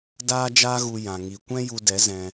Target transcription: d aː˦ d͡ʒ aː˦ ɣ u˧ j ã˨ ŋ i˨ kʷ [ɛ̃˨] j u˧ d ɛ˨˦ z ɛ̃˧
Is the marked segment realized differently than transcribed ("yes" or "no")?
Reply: yes